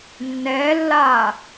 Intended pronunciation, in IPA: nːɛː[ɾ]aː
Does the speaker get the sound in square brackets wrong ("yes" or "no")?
yes